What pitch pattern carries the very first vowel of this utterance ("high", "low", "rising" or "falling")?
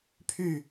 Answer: falling